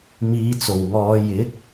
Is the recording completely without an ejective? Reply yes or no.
yes